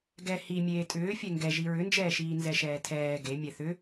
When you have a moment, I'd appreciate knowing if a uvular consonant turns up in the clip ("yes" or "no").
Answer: no